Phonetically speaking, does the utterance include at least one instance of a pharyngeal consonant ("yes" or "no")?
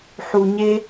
yes